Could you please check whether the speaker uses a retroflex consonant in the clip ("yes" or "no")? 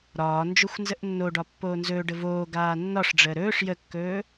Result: yes